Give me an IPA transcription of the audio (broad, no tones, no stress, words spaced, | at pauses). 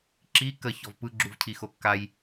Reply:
ǁi kə çɔvpɯ ɡ͡ǁuvcʰixokːaj